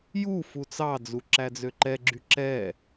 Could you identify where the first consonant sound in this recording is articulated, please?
palatal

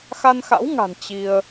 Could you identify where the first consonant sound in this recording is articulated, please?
velar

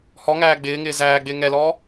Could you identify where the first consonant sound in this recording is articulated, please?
glottal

